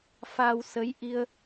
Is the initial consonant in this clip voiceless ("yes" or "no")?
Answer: yes